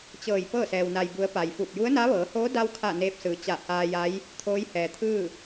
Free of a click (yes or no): yes